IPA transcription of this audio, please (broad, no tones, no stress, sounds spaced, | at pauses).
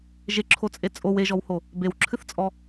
ʒ e ǁʰ o t͡sʼ e t͡sʼ o w e ʒ ɔ w h o | b e w ǁʰ ɨ θ t͡sʼ ɔ